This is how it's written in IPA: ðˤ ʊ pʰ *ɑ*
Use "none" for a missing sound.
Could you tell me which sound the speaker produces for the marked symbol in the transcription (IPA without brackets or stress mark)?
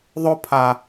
a